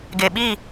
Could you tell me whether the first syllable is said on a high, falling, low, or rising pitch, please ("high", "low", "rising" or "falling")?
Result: low